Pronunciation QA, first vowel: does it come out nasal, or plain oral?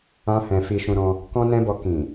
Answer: nasal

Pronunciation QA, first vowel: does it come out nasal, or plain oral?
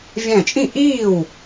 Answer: nasal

